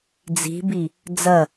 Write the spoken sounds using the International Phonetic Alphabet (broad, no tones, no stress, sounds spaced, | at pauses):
d͡z i̤ b i | d͡z ɐ